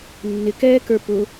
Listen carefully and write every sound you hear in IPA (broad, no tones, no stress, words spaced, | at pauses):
nːɪkɛːkə˞ pʊ